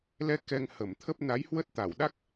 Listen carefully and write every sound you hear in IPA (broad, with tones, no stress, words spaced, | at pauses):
lɛ˧ kɛ˧ŋhə˧˩m t̪ʰə˦˥p̚ na˨˦jhwə˦˥t̚ t̪a˧˩wɗa˦˥k̚